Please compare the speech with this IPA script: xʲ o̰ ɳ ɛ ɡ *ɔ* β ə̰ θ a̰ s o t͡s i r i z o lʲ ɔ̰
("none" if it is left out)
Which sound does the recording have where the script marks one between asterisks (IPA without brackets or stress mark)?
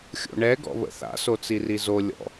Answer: ɔ̰